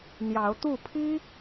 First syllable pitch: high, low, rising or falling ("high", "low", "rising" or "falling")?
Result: rising